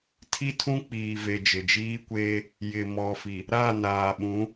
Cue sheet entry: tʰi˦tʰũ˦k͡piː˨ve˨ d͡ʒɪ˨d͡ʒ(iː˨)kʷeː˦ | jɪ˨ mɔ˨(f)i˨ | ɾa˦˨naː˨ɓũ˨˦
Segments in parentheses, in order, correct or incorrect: incorrect: iː˦, correct

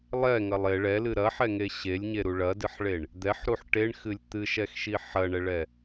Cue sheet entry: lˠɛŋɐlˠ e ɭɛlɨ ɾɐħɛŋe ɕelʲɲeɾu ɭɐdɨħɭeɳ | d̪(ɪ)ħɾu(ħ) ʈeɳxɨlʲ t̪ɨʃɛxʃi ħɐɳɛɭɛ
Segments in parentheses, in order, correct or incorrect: incorrect: ɛ, correct

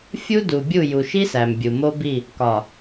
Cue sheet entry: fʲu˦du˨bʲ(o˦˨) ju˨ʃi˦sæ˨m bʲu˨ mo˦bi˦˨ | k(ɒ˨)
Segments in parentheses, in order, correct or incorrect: incorrect: u˦˨, correct

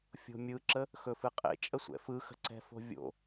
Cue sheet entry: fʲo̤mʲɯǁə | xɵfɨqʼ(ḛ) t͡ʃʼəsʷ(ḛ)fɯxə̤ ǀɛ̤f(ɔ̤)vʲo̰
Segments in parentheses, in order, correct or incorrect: correct, incorrect: ɛ̰, incorrect: o̤

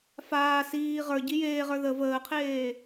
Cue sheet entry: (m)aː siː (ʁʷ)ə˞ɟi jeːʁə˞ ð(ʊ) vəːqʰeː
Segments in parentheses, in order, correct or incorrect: incorrect: f, incorrect: ʁ, incorrect: ə

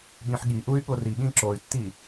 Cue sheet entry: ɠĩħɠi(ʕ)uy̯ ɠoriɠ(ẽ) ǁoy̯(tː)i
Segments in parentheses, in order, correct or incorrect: incorrect: ʔ, incorrect: ĩ, correct

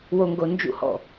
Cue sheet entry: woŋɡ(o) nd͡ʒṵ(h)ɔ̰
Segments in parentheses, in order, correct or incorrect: correct, correct

